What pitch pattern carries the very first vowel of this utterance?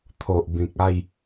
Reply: low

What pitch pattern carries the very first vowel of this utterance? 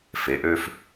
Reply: rising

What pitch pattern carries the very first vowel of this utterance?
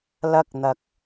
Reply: high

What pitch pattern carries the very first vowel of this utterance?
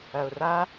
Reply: low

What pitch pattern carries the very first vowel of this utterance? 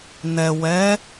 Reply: low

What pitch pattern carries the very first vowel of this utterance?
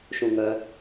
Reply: low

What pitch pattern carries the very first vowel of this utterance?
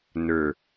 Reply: low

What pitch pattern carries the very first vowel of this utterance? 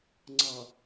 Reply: low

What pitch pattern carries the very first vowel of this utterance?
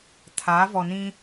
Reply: rising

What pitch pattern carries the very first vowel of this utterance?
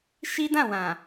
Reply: high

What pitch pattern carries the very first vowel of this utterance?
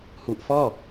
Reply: low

